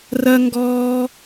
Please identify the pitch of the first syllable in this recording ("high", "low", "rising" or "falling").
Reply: low